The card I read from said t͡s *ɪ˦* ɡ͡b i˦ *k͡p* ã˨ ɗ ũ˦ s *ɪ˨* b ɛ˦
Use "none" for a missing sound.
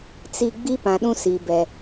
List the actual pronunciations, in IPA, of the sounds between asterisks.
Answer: i˦, p, i˨

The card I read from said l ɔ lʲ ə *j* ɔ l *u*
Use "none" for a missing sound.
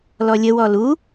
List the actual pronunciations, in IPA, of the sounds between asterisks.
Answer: w, u

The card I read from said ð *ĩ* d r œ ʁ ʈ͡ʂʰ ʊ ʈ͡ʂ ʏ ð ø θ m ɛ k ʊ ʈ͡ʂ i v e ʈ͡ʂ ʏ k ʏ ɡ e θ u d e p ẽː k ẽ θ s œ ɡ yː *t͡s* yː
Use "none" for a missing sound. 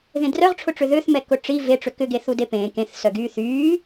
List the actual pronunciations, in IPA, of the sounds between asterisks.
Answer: ẽ, θ

